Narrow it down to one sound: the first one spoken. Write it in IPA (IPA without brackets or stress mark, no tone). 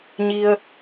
ɲ